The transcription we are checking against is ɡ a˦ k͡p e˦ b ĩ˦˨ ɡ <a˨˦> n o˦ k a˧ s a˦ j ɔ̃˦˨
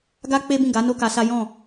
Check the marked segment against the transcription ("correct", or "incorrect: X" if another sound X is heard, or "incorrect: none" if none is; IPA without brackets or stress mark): correct